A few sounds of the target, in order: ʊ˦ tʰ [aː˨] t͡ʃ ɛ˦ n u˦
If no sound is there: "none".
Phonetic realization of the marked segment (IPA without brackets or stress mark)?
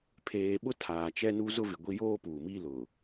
aː˨